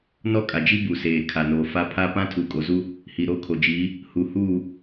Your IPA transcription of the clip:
n ɔ˦ kʼ a˨ d͡ʒ i˦ b u˨ s eː˨ kʰ a˨ n oː˨ f a˦ pʰ a˦ p ã˦ tʰ u˨ kʼ o˨ z u˦ | h i˨ ɾ o˦˨ kʰ o˨ d͡ʒ iː˨˦ | h u˨ h uː˦˨

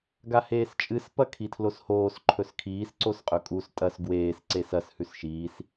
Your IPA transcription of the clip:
ɡ a h eː s t͡ʃʼ ɨ s p ɐ kʰ i tʰ l o s h oː s ǃʰ ɵ s kʰ iː s ǀ o s qʼ ɵ kʼ u s tʼ ɐ s ɡ w eː s ǀ e s ɐ s h ʉ s ʃ iː s

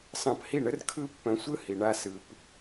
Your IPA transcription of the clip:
s ɑ̃˧ p h i˦˨ ɳ ə˦ r kʰ ɯ˦ pː œ̃˧ sʷ ɯ˦ h i˨ ɳ a˧ s ɯ˨ p

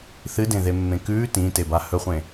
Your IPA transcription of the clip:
θ ɨ d ẽ ð e mː ẽ k ʉː t ĩ t e b a h ɵ χʷ ẽ

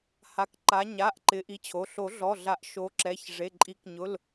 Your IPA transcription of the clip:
h a˨˦ k ǃ a˨˦ ɲ a˩˧˩ ʔ ǃ ɪ˨˦ ʔ i˨˦ t͡ɕʰ o˩˧˩ ɬ o˨˩˦ ɮ ɔ˩˧˩ ɮ a˨˩˦ ʔ ʃ o˨˦ ǁ ɛ˩˧˩ ç ʐ e˩˧˩ ǃʼ i˨˩˦ k ɲ ʊ˩˧˩ l

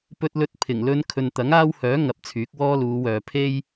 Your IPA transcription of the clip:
p ɵ˥ t̚ l ɵ˥ t̚ pʰ ɪ˨˩ ŋ l ɵ˥ n kʰ ɵ˨ n t̪ ɐ˨˥ ŋ aː˥ w h œː˨˥ ŋ ɐ˨˥ p̚ t͡sʰ yː˨˥ k̚ w ɔː˥ l uː˨˧ w œː˨ pʰ e˥ j

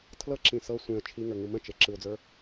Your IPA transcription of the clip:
tʰ l ɤ ǁ ĩ s ɤ sʷ ẽ ə̯ t͡ʃʰ i ŋ ə˞ ŋ ɯ m ə̃ t͡ʃ e ǁ ɯ ʊ̯ d͡z ə˞

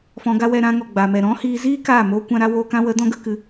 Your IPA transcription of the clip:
f ɔ̃˧ ɡ a˦ w ɛ˧ ɾ ã˧ ŋ ɔ˨ ɡ͡b a˨ m ɛ˨ ɾ ɔ̃˦ h iː˧ z iː˦ k aː˦˨ m oː˦ kʷ ã˦ ɾ a˦ w oː˧ k ã˧ w ə˨˦ d ɔ̃˦ ɡ ə˦ k ɨ˧

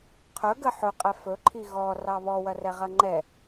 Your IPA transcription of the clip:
qʰ ɵ ɡ ə ħ ɵ qʼ ɛ f ɵ ǃʰ i ɣ ɔ r ɑ β ɔ w ɐ r ɛ ʁ ɐ ŋ͡ǃ ɛ

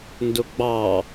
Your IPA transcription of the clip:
n d ʊ ɡ͡b ɑ

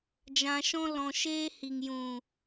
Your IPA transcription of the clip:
d͡ʒ ã˧ ʃ ɔ̃˦ l ɔ̃˧ ʃ eː˦ h i˨ ŋ j ũ˨

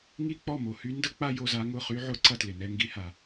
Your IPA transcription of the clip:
ŋ i˥˧ k͡p ɔ˥˩ m o˩ h y˦˥ n d ə˥˧ k͡p a˥˧ j o˥˧ z a˦˥ ŋ ʊ˥˧ χ y˦˥ ʕ ʊ˥˧ ǀ ɐ˥˧ t l ɪ˩ n ɛ˥˧ ŋ ɡ i˦˥ h a˩

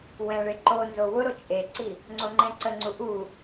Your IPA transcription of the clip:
w ɛ̃ ɭ e ǃ o n z o w ʊ ɾ o t͡ʃʼ e ǀ i | ŋ͡ǀ o ŋ͡ǃ ɛ̃ ǀ ə ŋ͡ǀ u ʔ u

